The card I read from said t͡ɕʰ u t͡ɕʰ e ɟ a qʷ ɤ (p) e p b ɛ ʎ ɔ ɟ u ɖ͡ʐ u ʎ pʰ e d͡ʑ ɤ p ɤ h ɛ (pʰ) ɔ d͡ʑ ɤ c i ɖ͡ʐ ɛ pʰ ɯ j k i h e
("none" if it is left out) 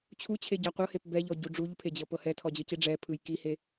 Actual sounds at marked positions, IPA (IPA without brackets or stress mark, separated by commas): h, tʰ